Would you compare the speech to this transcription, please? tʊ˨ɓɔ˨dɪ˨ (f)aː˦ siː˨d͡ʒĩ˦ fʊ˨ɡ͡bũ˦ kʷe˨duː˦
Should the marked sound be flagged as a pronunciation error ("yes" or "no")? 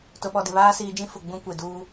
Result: yes